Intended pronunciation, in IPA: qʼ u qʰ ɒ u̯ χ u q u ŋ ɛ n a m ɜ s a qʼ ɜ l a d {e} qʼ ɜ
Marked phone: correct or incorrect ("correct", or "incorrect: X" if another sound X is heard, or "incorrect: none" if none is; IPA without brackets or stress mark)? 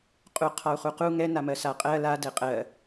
incorrect: ɛ